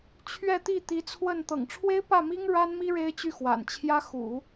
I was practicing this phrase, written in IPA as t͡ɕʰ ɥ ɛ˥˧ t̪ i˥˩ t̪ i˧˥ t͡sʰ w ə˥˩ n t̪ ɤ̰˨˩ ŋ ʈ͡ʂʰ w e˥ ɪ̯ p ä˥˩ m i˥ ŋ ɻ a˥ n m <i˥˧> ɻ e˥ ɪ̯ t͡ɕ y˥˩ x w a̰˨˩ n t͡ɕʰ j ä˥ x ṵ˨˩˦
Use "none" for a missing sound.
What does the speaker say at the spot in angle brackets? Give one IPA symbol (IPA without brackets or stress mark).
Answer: i˥